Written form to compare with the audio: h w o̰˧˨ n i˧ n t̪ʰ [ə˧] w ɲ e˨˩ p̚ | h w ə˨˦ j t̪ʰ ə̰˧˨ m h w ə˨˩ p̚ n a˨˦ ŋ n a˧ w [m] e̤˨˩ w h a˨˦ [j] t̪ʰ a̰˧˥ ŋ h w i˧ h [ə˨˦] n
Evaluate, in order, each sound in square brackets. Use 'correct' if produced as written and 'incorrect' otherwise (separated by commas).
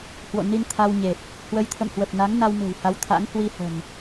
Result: incorrect, correct, incorrect, incorrect